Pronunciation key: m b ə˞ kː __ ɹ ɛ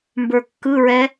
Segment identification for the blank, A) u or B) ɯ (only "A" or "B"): B